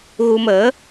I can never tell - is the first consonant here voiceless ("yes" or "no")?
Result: no